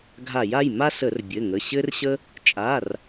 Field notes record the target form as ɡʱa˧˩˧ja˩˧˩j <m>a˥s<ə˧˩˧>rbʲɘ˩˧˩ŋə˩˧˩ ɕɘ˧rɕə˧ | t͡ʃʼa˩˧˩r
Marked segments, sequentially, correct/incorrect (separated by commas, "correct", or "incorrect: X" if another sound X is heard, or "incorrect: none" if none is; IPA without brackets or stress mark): correct, correct